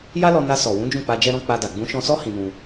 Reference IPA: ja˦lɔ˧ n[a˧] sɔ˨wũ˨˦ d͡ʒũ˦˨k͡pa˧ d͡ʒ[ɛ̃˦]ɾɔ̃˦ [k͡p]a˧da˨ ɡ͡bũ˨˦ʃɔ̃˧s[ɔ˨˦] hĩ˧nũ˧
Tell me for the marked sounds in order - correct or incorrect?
correct, incorrect, correct, incorrect

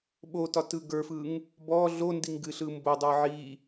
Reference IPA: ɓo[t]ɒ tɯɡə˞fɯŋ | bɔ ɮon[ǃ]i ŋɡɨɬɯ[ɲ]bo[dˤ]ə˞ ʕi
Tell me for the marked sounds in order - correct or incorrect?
correct, incorrect, incorrect, correct

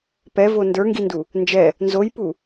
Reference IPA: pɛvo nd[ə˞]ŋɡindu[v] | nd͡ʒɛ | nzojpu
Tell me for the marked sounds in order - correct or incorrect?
correct, incorrect

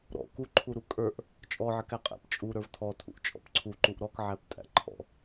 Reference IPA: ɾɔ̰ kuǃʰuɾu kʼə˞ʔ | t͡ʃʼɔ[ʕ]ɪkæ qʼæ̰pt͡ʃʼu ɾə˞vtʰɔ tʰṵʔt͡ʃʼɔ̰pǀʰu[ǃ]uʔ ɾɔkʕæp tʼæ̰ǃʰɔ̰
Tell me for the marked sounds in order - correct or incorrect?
correct, correct

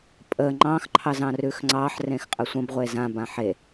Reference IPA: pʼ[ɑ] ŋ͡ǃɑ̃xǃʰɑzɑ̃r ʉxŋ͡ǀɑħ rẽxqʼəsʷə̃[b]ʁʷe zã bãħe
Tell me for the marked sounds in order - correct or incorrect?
incorrect, correct

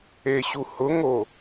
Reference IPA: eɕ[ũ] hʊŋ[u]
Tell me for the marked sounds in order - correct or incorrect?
incorrect, incorrect

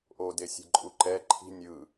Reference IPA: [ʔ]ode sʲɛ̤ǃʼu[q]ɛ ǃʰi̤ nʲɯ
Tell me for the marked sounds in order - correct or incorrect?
correct, incorrect

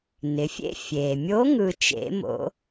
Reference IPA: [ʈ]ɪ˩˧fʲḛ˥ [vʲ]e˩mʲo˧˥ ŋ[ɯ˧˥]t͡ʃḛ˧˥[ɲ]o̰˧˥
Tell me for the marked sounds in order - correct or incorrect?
incorrect, incorrect, incorrect, incorrect

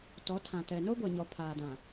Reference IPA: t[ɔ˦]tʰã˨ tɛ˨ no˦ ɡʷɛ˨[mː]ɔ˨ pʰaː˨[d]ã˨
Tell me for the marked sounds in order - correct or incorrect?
incorrect, incorrect, correct

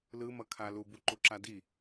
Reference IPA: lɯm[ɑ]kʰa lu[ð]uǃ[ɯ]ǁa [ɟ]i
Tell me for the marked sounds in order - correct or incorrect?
incorrect, incorrect, incorrect, incorrect

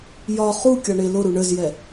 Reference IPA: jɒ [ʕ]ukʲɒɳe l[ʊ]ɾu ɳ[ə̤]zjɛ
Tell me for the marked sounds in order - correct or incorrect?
incorrect, correct, incorrect

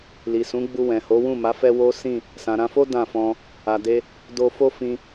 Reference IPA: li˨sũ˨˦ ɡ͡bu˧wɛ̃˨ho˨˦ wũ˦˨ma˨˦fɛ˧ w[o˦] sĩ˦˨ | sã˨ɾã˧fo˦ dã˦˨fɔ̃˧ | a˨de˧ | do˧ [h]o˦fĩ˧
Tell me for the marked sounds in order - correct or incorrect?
correct, incorrect

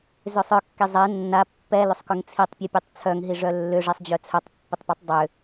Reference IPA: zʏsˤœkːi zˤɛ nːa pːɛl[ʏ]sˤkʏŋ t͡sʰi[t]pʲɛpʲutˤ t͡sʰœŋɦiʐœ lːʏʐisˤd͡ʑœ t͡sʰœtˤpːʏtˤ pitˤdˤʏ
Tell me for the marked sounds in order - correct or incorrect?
correct, incorrect

